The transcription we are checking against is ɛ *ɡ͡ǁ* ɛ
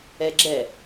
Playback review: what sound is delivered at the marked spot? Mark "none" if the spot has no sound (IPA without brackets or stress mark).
ɡ͡ǁ